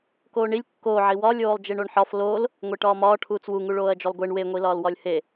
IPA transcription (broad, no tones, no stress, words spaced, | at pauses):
koːɳilʲ kːoːʕi wɒlʲoːlˠ d͡ʒeɳoɳħɒf loːl | ŋʷeʈɒːmɒː ʈʰuːt͡swuŋu ɭoːɐ̯d͡ʒolˠɡʷeɳ weŋʷilɒːl wɒlʲhe